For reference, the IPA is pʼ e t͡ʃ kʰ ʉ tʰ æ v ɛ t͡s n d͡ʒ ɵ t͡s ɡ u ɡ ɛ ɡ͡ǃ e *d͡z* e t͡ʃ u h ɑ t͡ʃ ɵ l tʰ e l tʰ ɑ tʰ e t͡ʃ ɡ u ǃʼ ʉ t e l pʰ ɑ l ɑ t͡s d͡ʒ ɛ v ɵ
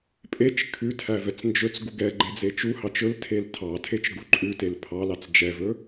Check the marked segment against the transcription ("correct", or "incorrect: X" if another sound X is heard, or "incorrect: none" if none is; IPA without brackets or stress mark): correct